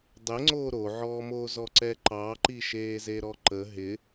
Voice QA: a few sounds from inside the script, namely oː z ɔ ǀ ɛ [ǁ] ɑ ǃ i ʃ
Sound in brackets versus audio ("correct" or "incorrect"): incorrect